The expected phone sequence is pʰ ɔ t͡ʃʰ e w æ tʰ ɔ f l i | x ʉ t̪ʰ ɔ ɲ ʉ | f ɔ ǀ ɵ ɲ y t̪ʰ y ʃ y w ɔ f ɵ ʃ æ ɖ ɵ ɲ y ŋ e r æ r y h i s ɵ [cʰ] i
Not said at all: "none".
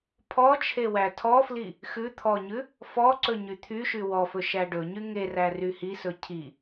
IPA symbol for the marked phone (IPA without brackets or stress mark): cʰ